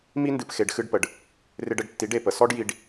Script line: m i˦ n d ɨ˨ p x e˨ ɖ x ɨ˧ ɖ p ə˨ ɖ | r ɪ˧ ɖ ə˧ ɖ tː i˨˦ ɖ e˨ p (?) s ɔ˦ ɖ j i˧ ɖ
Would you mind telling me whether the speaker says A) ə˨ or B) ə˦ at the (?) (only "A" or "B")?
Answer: A